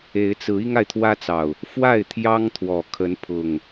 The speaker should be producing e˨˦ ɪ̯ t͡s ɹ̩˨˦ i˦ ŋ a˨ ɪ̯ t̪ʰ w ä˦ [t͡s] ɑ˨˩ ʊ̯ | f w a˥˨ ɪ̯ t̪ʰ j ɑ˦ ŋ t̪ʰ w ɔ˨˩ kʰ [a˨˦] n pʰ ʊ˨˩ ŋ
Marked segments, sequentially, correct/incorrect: correct, incorrect

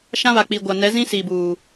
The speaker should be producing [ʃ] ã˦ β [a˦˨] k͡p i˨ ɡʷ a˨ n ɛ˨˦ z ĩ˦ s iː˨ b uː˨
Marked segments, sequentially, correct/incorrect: correct, incorrect

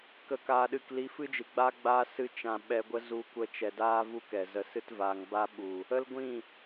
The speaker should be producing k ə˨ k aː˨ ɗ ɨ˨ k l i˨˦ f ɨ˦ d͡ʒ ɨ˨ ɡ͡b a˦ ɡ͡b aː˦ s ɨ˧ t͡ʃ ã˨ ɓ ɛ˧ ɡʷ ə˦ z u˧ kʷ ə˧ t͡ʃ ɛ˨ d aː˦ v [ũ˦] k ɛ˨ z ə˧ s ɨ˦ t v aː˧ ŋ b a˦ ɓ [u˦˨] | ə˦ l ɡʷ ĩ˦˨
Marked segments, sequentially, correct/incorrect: incorrect, incorrect

